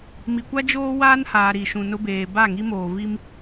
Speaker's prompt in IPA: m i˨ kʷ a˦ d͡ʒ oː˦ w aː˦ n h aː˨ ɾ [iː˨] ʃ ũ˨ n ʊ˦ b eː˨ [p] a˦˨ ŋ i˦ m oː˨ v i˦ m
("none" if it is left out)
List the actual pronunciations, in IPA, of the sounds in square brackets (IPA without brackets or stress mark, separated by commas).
i˨, b